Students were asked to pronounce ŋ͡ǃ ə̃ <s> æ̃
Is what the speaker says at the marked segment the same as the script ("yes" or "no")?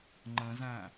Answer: no